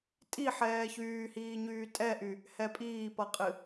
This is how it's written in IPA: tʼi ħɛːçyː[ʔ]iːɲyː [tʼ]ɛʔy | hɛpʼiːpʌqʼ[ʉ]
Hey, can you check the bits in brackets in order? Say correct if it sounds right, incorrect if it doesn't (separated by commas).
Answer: incorrect, correct, incorrect